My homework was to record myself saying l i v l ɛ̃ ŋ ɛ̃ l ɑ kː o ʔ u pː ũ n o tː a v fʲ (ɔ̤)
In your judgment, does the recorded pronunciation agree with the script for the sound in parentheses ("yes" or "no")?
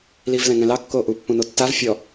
no